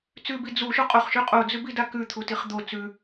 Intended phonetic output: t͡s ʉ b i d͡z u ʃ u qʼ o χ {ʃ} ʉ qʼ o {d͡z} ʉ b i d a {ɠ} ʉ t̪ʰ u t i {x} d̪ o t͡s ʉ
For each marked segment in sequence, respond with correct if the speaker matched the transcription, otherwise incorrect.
correct, correct, incorrect: k, incorrect: χ

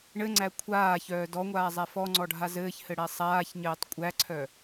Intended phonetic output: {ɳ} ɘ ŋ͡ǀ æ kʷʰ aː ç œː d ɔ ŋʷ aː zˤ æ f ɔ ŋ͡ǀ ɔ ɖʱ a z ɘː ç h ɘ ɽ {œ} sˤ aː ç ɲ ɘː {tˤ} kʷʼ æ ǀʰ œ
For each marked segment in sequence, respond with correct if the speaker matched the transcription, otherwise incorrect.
correct, incorrect: æ, correct

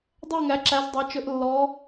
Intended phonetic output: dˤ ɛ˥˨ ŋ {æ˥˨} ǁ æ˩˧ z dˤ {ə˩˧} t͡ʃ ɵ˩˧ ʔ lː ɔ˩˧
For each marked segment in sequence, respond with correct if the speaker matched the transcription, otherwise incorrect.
incorrect: æ˩˧, incorrect: ɑ˩˧

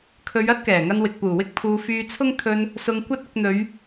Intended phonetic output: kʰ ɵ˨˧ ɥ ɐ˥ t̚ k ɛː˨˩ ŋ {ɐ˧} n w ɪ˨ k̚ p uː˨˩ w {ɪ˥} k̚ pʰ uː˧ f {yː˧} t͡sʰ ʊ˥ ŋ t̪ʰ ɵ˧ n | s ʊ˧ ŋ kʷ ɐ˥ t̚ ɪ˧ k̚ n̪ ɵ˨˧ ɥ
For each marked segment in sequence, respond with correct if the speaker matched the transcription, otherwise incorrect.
correct, correct, correct

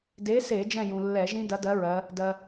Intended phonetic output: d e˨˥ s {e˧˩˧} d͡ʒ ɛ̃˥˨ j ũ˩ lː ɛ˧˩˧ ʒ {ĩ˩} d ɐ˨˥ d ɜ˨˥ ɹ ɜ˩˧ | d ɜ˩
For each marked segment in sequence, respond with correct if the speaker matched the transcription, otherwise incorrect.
correct, incorrect: ĩ˦˥

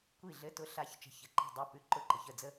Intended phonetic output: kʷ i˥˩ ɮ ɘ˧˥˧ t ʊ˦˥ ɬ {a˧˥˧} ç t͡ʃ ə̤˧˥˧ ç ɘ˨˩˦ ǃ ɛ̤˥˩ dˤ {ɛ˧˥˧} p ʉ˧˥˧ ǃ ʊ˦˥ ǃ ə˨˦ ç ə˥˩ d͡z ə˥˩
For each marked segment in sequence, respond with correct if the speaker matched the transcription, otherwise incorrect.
correct, correct

